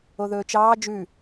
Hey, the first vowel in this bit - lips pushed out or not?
yes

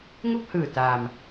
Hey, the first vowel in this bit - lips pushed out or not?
yes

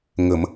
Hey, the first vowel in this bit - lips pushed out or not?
no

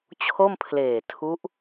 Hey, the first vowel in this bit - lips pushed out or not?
yes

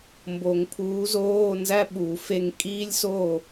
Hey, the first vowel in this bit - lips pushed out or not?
yes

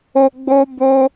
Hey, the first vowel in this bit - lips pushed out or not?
yes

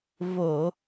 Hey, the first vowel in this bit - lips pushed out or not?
yes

